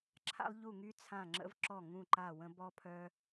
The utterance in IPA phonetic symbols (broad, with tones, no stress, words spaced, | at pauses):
ǁʰa̰˥lˠʎu˥˨ŋy˥ t͡sʰã˥˨ŋ͡ǁə̰˥vǁɔ˥˨ ŋũ˥˨ǃa˥˨wə̃˥ bɔ˥pʰœ˥